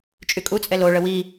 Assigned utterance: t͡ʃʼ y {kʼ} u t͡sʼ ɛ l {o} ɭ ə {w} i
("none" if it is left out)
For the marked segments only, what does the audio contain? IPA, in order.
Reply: kʼ, o, w

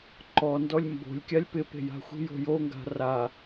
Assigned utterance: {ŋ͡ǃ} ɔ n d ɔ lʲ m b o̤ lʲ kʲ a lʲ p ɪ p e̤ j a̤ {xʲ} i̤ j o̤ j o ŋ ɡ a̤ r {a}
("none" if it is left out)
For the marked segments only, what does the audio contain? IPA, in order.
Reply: ǃ, xʷ, a

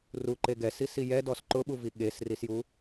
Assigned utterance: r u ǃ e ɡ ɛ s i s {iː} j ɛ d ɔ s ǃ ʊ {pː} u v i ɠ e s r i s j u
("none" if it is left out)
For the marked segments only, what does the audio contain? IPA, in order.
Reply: i, ɓ

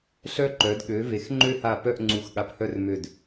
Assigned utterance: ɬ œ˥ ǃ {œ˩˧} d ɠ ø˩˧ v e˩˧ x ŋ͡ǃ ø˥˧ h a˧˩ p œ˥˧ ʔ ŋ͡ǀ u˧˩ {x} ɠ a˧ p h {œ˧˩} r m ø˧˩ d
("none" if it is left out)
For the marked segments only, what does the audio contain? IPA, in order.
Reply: œ˩˧, x, œ˥

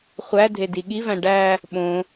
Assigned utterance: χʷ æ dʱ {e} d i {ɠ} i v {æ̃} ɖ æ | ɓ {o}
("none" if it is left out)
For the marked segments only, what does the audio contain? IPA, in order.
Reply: e, ɠ, æ̃, õ

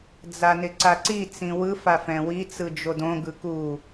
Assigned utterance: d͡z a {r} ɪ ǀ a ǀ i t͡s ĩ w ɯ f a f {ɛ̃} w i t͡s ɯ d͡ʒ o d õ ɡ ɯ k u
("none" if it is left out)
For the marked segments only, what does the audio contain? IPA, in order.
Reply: n, ɛ̃

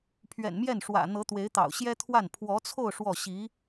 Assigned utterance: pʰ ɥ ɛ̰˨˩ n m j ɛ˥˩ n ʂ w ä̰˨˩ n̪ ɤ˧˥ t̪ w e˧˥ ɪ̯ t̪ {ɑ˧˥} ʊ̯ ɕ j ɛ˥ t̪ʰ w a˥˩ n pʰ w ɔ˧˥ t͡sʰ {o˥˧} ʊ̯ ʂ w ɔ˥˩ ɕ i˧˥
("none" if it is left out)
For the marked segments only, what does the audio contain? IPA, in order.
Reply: ɑ̰˨˩, o˥˧

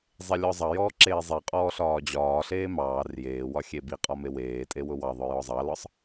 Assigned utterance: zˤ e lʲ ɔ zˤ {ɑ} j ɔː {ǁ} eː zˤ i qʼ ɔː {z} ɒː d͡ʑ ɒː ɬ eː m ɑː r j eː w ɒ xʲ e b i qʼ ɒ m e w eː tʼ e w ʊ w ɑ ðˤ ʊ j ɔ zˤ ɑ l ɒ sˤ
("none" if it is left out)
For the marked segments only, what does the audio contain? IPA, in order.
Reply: ɑ, ǁ, ɬ

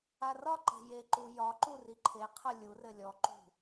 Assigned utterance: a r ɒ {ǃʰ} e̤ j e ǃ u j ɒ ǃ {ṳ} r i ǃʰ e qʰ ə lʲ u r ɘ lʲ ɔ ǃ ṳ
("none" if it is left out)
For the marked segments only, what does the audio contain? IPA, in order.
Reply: ǃ, u

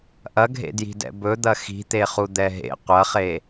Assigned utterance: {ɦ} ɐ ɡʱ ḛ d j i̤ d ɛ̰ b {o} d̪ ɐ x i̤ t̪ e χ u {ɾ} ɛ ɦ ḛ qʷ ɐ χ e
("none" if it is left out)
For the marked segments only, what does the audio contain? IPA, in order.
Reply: ʔ, ɵ, d̪

